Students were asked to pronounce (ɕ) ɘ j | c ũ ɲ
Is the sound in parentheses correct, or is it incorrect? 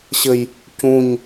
correct